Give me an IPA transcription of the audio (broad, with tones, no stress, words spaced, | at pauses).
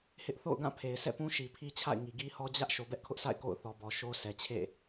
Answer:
hɪ˦ʔ θo̰˦˨ʊ̯ɡã˦˨ pʰe˨ɪ̯ sɛ̰˦˨pũ˦ ʃi˨pʰi˦t͡ɕʰa̰˦˨ɪ̯ ŋi˨ɡi˦hɔ˦ d͡ʑä˦ʔ ʃo˨bɛ˦ʔkʰʊ˦ʔsʰa̰˦˨ɪ̯ ko̰˦˨ʊ̯ θɔ˨bɔ˨ ʃo˦ sʰɛ˨t͡ɕʰḛ˦˨